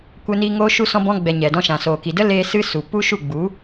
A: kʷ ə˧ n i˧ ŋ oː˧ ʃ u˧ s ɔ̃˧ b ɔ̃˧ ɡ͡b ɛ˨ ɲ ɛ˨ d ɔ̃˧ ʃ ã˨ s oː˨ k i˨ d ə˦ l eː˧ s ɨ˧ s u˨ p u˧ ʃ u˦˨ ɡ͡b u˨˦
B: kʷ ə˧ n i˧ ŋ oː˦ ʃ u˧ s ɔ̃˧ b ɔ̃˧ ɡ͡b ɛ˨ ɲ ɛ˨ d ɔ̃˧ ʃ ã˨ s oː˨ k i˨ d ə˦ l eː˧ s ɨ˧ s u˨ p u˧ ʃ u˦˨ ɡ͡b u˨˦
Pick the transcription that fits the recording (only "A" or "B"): A